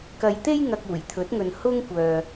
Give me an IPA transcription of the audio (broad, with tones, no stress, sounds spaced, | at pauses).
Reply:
k ɐ˨ j t̪ e˥ j ŋ ɐ˨ k̚ uː˨˩ j t̪ʰ ɵ˨˥ t̚ ŋ ɵ˨ n h ʊ˥ ŋ kʷ œː˨